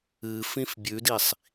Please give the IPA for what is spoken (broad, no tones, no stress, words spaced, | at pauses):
ɨfĩf bʲʉdisˤ